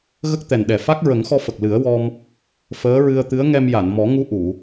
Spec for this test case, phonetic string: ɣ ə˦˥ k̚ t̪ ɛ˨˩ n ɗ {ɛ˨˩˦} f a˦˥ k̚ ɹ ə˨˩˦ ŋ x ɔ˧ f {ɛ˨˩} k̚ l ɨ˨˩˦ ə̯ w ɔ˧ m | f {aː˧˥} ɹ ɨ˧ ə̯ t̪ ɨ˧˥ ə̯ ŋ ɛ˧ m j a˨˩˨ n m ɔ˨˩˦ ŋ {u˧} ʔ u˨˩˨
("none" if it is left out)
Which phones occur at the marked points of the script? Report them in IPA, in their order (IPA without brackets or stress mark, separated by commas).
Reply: ɛ˨˩, ə˨˩, əː˧˥, u˧